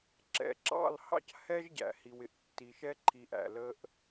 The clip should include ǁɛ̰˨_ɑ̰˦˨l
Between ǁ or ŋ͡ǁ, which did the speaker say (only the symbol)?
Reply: ǁ